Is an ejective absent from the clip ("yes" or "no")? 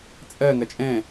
no